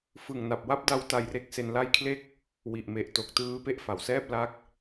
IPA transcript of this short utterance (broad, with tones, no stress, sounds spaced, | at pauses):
f ɯ˨˩ ŋ n a˨˩ p̚ w a˦˥ p̚ d a˦˥ w t a˧ j r e˥˩ k̚ s e˧ n l a˦˥ j kʰ l e˦˥ k̚ | w i˨˩ ʔ m e˨˩ ʔ t o˨˩ k̚ t ɯː˦˥ p e˥˩ ʔ f a˩˦ w s ɛː˥˩ p̚ l a˦˥ k̚